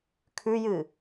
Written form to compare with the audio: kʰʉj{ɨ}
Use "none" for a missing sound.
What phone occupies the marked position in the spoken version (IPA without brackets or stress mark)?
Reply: ɨ